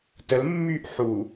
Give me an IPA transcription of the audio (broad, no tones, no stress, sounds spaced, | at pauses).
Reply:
t ə l mː yː ʔ ħ u